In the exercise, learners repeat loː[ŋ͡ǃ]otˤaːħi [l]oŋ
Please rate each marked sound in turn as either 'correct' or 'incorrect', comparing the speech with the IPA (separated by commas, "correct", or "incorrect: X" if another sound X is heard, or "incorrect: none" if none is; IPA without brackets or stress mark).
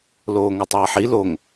incorrect: ŋ, correct